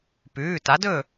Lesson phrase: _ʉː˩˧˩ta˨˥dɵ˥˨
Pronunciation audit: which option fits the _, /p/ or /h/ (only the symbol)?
p